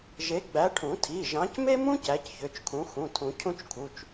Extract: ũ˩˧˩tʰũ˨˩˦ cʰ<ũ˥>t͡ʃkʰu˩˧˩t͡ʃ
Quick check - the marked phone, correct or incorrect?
correct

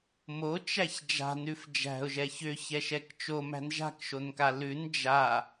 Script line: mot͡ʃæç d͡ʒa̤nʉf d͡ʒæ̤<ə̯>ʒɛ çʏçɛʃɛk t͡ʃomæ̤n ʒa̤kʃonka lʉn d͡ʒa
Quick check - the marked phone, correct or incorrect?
incorrect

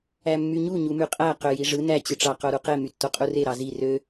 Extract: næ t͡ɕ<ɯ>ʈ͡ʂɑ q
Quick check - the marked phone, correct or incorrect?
correct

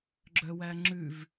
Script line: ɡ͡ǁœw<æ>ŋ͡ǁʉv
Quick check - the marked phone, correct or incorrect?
correct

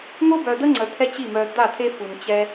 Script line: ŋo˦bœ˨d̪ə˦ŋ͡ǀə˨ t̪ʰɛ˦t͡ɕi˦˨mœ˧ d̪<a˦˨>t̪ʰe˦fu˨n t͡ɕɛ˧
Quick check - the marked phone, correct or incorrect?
correct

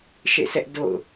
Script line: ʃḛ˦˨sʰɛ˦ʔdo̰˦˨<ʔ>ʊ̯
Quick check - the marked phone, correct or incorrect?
incorrect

